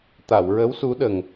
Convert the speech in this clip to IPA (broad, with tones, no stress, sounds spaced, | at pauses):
t̪ a˨˩˨ w ɹ ə˧˥ w s u˧˥ ɗ ə˨˩ ŋ